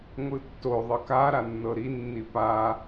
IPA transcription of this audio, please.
ŋʷ ɯ tː o ðˤ ɤ k a ɾ a nː ɤ ɾ i nː i p a

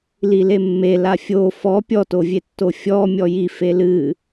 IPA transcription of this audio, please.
l i l e mː e l a fʲ o f ɔ pʲ ɔ t o vʲ e tː o fʲ ɔ mʲ ɔ j i f e l ɨ

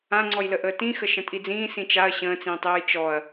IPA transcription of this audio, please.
ã ŋ͡ǀ ɔ j l ə ʔ əː t ĩ x ə ʃ ə̃ tʼ i d͡z ĩː s ĩ t͡ʃ a ɐ̯ ɕ ə̃ː t͡s ĩː tˤ j ɨ j t͡ʃ ɔ ɐ̯

